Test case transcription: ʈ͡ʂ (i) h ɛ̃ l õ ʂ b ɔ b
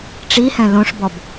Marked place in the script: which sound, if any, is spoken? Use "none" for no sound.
i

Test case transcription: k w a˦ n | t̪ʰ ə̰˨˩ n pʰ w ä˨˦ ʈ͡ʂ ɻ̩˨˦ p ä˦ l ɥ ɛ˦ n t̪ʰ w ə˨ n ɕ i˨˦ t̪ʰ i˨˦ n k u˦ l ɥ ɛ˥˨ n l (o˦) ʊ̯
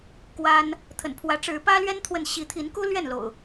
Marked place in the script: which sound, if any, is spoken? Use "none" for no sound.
o̰˨˩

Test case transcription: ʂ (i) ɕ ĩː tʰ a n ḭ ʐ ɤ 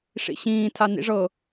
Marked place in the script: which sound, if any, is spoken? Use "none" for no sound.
ḭ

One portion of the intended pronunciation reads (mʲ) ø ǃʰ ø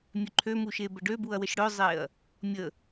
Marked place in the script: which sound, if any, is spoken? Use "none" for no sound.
mʲ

